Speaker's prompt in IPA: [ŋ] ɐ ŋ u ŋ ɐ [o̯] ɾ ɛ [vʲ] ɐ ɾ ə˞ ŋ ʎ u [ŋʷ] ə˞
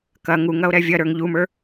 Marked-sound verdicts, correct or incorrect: incorrect: k, correct, correct, incorrect: m

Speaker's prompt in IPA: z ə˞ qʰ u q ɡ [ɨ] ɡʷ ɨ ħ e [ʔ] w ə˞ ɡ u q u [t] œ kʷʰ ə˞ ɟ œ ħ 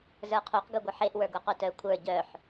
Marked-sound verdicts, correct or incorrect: incorrect: ʉ, correct, correct

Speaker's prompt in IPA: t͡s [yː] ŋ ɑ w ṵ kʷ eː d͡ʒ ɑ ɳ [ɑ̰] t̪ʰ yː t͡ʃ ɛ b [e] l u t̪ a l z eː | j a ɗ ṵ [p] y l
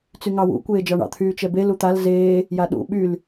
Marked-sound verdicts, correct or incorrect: incorrect: y, correct, correct, incorrect: ɓ

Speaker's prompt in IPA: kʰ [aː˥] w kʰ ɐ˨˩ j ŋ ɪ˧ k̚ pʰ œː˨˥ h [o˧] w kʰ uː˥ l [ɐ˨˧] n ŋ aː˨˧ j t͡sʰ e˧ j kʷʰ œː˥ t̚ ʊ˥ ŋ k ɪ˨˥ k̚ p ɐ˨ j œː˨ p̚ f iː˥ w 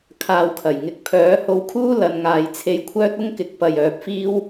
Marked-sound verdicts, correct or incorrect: incorrect: aː˧, correct, correct

